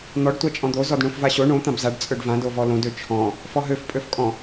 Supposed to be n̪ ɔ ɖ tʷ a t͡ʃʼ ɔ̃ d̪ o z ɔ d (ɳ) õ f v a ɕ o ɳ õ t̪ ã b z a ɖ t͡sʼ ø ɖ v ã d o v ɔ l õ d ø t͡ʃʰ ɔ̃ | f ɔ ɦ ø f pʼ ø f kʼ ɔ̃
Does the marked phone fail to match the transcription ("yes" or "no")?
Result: no